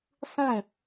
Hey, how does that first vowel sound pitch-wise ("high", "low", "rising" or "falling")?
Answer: falling